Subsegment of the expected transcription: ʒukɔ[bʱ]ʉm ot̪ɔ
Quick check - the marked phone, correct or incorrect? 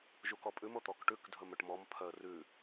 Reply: incorrect: pʼ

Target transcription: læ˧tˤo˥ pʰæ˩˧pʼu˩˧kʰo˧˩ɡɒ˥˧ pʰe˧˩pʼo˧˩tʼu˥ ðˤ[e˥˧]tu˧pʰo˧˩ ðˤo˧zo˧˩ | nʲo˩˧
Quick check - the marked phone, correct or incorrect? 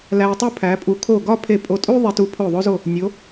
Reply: incorrect: e˧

